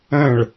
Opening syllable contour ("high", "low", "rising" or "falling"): falling